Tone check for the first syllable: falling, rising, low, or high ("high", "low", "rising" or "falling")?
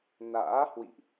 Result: rising